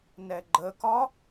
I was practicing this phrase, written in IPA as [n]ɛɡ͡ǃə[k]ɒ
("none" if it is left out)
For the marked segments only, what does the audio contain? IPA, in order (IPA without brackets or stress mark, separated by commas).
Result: n, k